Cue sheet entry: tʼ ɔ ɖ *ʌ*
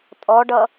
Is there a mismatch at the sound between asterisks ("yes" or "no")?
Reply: no